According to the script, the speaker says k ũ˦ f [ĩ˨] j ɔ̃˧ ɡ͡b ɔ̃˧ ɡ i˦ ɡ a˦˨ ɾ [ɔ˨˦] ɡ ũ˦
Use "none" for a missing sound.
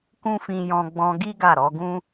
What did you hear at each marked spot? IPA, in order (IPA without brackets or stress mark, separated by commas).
ĩ˧, ɔ˨˦